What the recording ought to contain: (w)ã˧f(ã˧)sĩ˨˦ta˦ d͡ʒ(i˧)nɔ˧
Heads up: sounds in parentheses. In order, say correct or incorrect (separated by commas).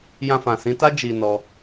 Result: incorrect, incorrect, correct